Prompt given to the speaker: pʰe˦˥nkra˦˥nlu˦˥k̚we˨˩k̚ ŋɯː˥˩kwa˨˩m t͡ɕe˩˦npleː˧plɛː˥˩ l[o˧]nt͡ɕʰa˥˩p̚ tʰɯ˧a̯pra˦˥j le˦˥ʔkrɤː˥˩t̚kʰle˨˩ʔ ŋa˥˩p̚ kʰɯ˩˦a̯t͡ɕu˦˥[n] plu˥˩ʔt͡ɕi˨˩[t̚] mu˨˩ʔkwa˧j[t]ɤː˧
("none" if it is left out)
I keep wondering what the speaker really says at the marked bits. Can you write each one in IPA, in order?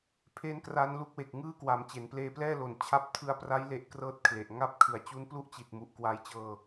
o˨˩, n, t̚, t͡ɕ

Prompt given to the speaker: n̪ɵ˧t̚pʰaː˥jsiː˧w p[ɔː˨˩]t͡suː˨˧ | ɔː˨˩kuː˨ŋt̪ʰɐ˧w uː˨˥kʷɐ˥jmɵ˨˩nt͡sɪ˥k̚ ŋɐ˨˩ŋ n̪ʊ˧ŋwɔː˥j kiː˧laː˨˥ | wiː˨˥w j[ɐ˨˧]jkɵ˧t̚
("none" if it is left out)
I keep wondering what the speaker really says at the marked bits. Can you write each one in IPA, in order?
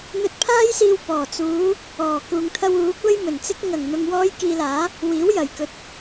ɔː˨˩, ɐ˨˩

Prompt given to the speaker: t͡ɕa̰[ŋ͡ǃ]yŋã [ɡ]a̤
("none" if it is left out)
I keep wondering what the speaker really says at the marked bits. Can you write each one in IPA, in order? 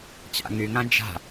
ŋ, d͡ʒ

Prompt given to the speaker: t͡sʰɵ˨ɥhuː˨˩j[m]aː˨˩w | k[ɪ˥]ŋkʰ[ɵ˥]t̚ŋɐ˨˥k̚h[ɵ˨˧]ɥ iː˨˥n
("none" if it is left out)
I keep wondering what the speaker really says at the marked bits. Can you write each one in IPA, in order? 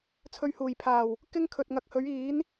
pʰ, ɪ˥, ɵ˨, ɵ˨˥

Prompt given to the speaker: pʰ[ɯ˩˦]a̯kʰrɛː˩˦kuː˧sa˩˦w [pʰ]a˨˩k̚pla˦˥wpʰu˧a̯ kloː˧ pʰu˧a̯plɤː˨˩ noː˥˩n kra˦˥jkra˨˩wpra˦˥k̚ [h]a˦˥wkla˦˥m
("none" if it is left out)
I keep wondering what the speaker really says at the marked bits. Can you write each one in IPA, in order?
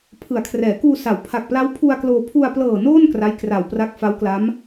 ɯ˩˦, pʰ, f

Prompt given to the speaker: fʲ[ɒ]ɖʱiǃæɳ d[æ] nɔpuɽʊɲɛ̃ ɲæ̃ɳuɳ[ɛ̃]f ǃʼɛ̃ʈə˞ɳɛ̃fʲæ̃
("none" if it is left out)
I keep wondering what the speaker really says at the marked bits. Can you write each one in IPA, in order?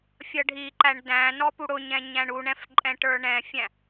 ʌ, æ̃, ɛ̃

